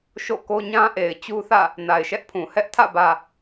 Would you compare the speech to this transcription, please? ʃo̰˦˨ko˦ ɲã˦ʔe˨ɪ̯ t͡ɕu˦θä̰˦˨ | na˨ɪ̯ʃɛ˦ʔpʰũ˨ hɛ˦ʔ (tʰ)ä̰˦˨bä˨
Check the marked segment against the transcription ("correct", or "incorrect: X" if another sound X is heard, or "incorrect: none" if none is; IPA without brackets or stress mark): correct